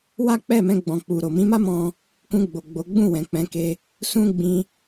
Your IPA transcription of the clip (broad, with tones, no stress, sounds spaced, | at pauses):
w a˦ k͡p ɛ˦˨ m ɛ̃˧ ɡ͡b ɔ̃˨ k͡p u˨ ɾ o˨ m ĩ˨˦ m a˦ m ɔ̃˧ | k ũ˧ ɡ͡b o˨ ɡ͡b o˨˦ ɡ͡b ũ˦˨ w ɛ̃˨ k͡p ɛ̃˨˦ k e˧ | s ũ˦ ɡ͡b ĩ˧